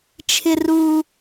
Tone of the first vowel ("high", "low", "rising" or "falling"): low